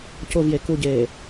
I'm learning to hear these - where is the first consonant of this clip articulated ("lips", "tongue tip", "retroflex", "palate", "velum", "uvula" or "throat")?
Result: palate